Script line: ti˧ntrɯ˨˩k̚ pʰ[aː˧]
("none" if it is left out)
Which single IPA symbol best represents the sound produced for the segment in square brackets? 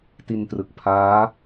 aː˦˥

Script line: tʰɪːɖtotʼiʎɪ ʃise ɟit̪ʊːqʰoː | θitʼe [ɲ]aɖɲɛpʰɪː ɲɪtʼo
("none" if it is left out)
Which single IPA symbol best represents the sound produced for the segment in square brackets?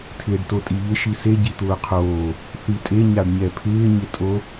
ɲ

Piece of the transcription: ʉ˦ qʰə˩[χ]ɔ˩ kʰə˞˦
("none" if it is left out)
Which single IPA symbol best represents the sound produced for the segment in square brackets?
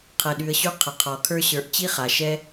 qʰ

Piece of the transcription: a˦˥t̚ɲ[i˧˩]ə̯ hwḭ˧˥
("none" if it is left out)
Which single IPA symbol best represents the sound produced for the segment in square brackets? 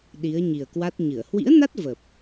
ɨ˧˩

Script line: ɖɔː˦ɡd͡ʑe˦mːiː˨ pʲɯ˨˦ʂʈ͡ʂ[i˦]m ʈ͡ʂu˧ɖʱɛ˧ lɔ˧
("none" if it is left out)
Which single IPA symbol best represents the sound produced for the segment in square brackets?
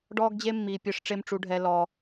e˦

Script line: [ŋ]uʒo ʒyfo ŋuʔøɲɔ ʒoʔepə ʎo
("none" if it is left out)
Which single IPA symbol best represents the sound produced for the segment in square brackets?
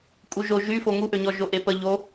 kʼ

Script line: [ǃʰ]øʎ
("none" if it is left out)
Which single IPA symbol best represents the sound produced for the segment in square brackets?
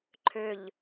ǃʰ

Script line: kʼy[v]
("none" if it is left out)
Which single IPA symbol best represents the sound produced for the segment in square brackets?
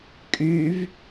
v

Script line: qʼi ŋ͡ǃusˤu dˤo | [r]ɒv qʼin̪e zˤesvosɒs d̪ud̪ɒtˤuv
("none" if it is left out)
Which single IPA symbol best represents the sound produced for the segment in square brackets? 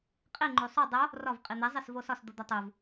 r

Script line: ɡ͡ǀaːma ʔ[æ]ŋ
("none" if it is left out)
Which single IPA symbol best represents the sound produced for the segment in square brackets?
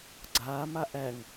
æ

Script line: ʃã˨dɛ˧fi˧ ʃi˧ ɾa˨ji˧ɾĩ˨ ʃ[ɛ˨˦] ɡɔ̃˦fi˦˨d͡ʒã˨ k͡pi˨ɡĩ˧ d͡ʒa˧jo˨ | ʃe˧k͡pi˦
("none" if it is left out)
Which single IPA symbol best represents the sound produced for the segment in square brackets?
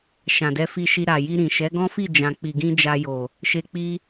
ɛ˨˦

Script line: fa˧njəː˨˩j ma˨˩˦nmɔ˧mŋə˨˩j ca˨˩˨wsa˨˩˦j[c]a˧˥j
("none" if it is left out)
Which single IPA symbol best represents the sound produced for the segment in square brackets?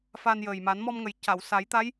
t̪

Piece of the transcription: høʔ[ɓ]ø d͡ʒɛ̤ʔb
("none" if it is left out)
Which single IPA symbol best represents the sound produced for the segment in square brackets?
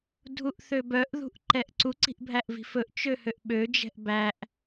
ɓ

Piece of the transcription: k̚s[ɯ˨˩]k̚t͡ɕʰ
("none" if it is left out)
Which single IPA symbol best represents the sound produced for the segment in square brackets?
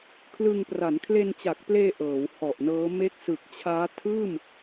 ɯ˨˩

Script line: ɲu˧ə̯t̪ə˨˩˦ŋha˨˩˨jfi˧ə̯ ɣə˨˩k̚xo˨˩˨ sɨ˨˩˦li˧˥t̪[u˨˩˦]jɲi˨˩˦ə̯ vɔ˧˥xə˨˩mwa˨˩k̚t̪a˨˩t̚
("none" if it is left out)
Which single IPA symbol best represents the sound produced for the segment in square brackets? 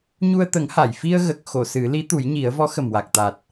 u˨˩˦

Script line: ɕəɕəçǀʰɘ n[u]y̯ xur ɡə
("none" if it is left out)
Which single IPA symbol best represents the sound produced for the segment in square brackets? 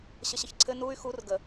u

